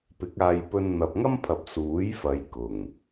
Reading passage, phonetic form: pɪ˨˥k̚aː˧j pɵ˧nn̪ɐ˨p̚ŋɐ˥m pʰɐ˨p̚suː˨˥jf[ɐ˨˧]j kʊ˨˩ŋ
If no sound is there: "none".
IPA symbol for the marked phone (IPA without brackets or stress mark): ɐ˨˧